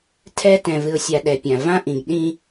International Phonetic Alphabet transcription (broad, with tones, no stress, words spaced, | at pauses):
tʰɛ˦ tɛ̃˨vɨ˨ʊ̯sʲa˨ ɗɛ˨pʲã˨ vã˦ʔĩ˨ɡ ɗĩ˦